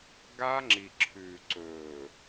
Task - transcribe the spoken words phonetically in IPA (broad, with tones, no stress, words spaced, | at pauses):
ɡa˦ŋ͡ǁi˨ ǁʰʉ˨ ǀɵː˨